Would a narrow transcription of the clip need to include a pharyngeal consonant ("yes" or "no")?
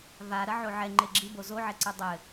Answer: yes